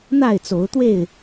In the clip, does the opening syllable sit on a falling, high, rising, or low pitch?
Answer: falling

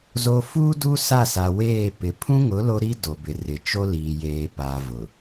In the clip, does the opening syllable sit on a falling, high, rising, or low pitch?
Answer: high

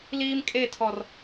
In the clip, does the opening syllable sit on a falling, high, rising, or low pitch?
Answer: high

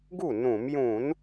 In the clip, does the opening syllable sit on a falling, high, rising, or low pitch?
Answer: falling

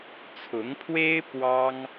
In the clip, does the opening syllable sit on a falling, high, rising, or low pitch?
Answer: rising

